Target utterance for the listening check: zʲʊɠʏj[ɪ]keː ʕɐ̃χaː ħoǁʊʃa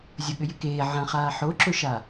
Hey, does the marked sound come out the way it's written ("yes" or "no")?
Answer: yes